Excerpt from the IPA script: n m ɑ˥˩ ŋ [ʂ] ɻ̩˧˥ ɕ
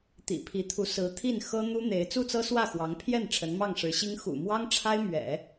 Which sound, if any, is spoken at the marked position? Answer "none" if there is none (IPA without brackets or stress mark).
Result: ʂ